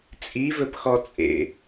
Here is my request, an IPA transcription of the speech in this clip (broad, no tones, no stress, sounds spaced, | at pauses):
t͡sʼ i v ɵ p x ɔ t͡sʼ ḛ